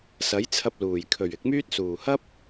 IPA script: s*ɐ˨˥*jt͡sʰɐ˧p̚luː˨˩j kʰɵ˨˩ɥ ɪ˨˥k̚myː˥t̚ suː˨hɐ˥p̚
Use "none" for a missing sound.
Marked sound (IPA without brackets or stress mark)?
ɐ˨˥